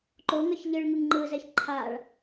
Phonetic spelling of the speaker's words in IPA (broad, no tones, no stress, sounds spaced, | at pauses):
ǃ o ŋ ʌ ç ʎ ɯ ɭ ŋ ɯ ŋ ŋ͡ǃ ɯ z ɛ ç ǃʰ a ɭ